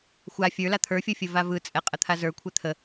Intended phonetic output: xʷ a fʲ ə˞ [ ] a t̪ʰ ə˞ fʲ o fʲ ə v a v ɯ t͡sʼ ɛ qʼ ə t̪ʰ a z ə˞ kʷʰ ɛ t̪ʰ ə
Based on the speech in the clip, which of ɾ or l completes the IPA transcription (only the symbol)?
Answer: l